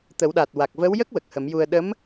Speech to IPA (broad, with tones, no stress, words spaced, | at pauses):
t̪ə˨˩˦wɗa˨˩t̚ wa˨˩k̚və˧˥wjə˦˥k̚ wə˨˩k̚hə˨˩˦mju˧ə̯ ɗə˧˥m